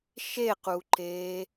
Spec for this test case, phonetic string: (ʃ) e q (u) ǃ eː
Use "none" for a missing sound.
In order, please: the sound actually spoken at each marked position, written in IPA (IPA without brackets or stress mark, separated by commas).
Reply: ʃ, u